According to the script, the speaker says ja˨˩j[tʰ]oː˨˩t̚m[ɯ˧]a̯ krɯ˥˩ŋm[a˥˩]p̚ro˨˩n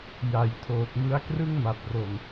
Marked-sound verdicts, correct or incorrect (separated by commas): correct, incorrect, incorrect